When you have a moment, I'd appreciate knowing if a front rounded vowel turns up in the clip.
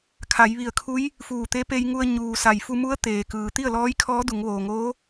no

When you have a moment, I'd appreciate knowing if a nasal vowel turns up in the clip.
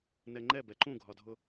yes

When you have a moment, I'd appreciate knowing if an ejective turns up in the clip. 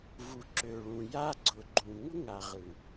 no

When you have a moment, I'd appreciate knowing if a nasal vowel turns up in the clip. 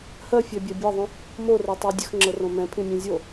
yes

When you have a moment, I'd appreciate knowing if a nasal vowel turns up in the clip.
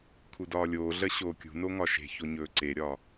no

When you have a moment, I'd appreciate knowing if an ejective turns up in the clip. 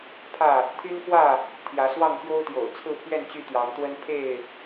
no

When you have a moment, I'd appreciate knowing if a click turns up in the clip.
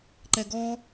yes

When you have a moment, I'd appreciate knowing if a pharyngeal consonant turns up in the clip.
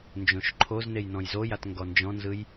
no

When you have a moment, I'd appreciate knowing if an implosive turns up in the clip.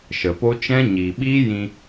yes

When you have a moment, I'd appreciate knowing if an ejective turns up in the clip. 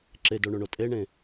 yes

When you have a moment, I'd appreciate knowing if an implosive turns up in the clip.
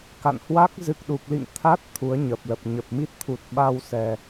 yes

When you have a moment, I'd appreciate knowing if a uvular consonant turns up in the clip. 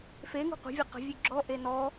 yes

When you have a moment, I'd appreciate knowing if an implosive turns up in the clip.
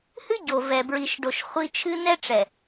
no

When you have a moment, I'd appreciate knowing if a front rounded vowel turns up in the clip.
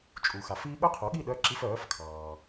yes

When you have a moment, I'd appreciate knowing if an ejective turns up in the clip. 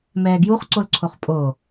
yes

